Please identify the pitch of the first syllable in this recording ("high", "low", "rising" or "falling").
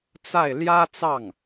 falling